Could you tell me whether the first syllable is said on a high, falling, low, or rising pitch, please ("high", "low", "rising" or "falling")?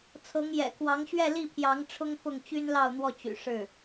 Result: rising